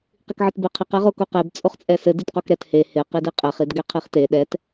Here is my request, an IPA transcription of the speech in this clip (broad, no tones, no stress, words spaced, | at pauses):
qikʕɘtbeqʰɪq ɛʁokoqeb t͡sʼoχt͡sʼɛsɘ ditqokɾɛt he hɪ qidiqʼɛχ idɡɛqʰiχte ɗɛt